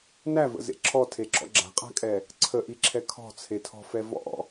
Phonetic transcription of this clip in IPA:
nævə̰zḛ ǁʰɔtʰeǁɔ̰ ɡ͡ǁa̤qʼa̤kʼɛ | ǀʰəʔiǁʰɛ kʰɔ̤t͡sʰetʰɔ̤fɛ vɔ̰

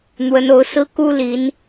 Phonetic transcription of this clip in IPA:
n̪wə˨˦no˨˦ʊ̯sɹ̩˦ ku˦li˨˦n

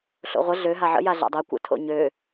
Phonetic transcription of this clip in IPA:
ɬo̰ʁʷə ɮøɦa ʕə̰ja ɮa̰dˤɛ kʷə̰ tʰo̰ɲø

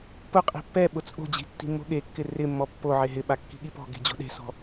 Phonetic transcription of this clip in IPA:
pʊqʼi̤ pːɛɓʊ t͡sʼo̤d͡ʑi̤ tːi̤mːo̤ɠekːɪ rɪmːɔ pːo ʕeɦɪɓa kːi̤ɠipɔ̤ɡe̤ d͡ʑo̤ɗe̤sɔ̤

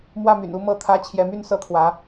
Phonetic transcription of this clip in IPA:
mwä˥˩my̰˨˩nu˥˧ mɤ˥˩t̪ʰä˥ t͡ɕʰjɛ˧˥my˥˩nsɤ˥t̪ʰwä˧˥

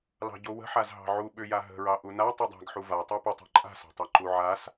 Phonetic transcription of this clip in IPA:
lɑ̤ɟowə̤ħaz ɦɑ̤ʕu ɓʏja ɦə̤ɹɑ ʔuna tˤudˤa̤ɡħu va tˤɑpətˤa̤ ǃʼa̤sɑ̤tˤa ǃuʕas

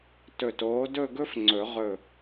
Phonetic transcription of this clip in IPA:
tɵ˧˩toː˨˥dɵ˥˧ ɡɵ˥fŋ͡ǀɵ˨˩˦ ʁɵ˧˩

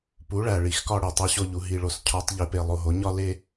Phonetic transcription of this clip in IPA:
pu˩˥ɭæ˨˩ ɭi˨˩˦xkɒ˥˧ɽe˨˩ tˤe˥˧ɕo˥˧ʎu˨˩˦ ɦi˨˩ɭo˨˩˦s cʰɒ˧˥tˤ ʎe˩˥pe˨˩ lˠo˨˩ɦo˩˥ ɲɒ˥˧le˥˧

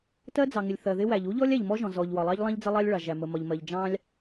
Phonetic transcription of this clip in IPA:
tɜ˥d͡zɑ˩ŋɪ˩lʲ θɜ˩ðɪ˥wæ˩ʎ u˥ʎɔ˥lʲæ˩ʎ mɔ˥ʒɔ̃˩ zɔ˩ʎwɒ˩lˠɑ˥ʎlˠɑ̃˥ʎ d͡zə˥lˠɑ˥lʲɭɑ˩ʒæ˩ mə˩mɒ˩ʎmɜ˩ʎ d͡ʒɑ̃˥lʲ

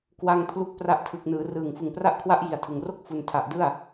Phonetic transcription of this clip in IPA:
kwa˧ŋ pʰlu˦˥k̚pra˦˥ʔtʰɯ˨˩k̚ nɯː˩˦rɯː˨˩ŋ fɯ˨˩ŋpra˦˥ʔkʰwa˦˥ʔ ji˨˩a̯tʰɯ˨˩ŋro˥˩k̚ fu˨˩ntʰa˨˩ʔdɯ˥˩a̯

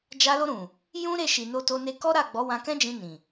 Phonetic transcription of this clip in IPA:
d͡ʒa˧lo˧ɾũ˨ | jũ˦ɾe˦˨ʃi˨ no˧to˧ ne˧kɔ˦ɾa˦˨ɡ͡bɔ˨˦ wã˧kɛ̃˦d͡ʒĩ˧ nĩ˨

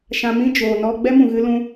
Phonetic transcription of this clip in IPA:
ʃã˧mĩ˦ d͡ʒoː˨nɔ˧ ɡ͡bɛ˦mũ˨ɣɨ˧ lũ˧

